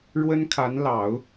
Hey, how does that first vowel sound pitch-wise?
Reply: high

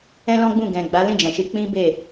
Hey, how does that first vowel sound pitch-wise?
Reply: high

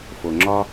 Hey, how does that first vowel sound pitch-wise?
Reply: low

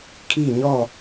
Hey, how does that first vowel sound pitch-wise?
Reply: falling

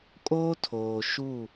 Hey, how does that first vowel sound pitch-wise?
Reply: high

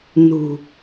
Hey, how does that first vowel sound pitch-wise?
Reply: low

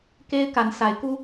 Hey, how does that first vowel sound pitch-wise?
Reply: high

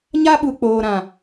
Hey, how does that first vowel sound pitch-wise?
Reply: high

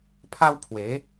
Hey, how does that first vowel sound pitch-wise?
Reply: high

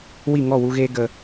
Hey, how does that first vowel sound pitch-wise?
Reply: falling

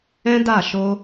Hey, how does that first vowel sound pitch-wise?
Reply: high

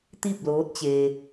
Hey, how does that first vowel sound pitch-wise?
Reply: falling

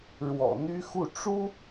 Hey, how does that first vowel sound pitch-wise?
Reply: low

